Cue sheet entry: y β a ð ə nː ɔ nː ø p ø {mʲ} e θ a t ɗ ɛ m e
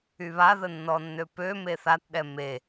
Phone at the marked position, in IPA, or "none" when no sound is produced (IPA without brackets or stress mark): m